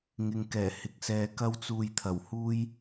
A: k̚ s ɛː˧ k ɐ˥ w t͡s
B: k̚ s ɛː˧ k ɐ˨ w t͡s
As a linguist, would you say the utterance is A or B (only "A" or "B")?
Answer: A